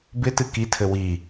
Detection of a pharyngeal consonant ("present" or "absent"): absent